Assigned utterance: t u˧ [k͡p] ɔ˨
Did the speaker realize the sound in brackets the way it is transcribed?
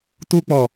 yes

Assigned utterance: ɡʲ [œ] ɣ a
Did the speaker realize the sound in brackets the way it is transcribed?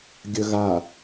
no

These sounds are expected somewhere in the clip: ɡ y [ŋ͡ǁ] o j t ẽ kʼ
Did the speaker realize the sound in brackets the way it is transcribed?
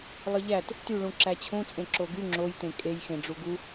yes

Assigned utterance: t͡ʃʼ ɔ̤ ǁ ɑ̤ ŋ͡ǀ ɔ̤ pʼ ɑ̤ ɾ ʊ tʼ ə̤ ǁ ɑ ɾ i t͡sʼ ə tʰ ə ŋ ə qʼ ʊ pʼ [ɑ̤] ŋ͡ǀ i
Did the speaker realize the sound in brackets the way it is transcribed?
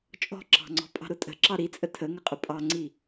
no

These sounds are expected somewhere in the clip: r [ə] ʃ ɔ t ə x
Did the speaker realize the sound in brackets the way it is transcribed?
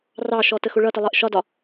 no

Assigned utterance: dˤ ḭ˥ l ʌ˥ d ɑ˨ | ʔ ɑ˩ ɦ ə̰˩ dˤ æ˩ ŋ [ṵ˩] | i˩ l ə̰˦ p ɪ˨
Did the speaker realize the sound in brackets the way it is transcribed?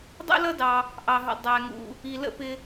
yes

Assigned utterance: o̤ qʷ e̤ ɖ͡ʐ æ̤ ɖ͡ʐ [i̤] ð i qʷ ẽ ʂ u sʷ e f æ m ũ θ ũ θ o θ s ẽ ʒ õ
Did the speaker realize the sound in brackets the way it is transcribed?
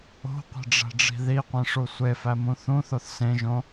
yes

